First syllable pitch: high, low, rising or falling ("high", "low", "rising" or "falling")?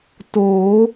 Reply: rising